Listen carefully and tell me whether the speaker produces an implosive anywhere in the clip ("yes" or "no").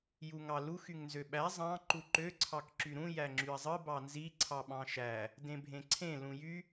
yes